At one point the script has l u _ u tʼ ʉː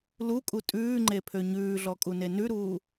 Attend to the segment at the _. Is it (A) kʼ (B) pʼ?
A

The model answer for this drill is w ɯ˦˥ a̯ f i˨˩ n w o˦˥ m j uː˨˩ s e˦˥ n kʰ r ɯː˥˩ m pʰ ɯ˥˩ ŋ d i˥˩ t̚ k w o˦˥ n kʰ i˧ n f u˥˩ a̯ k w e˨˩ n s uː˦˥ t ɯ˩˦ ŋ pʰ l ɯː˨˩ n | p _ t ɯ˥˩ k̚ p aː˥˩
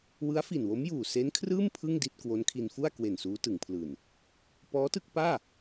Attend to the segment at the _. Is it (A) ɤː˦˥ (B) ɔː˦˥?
B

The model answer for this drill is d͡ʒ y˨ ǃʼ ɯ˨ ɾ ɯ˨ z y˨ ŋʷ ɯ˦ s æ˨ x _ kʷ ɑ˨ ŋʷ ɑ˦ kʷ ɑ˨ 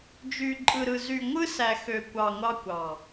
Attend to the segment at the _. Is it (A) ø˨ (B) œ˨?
A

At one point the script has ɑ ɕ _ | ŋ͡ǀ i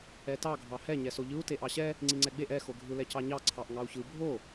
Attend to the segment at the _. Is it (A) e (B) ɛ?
B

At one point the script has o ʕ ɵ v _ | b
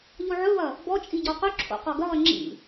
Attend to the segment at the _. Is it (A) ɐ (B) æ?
A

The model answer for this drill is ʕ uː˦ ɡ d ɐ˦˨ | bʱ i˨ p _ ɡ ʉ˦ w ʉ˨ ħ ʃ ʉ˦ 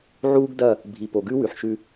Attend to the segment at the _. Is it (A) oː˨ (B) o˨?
B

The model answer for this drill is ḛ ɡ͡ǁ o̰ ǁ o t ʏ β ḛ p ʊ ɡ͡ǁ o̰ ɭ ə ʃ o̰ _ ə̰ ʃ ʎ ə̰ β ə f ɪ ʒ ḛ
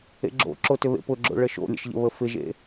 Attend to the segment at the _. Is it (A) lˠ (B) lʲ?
B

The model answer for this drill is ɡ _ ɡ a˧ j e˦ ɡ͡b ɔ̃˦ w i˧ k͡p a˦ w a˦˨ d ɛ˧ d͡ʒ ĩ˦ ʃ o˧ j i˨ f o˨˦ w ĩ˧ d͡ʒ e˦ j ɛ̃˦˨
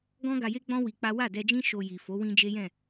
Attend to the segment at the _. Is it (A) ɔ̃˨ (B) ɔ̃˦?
B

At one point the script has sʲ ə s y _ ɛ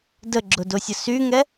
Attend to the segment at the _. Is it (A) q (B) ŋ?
B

